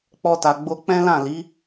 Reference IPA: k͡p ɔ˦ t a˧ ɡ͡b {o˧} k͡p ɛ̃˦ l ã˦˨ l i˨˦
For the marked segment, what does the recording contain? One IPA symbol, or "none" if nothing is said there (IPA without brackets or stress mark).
o˦